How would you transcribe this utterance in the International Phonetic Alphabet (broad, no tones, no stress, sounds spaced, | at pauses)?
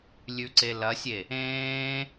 lʲ ʉ ǀ e l ɐ sʲ e | ẽː